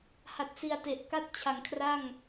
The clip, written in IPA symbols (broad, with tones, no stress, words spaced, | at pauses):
ha˨˩t̚si˨˩a̯te˨˩ʔ ka˥˩t̚ t͡ɕʰa˩˦ŋkʰra˥˩ŋ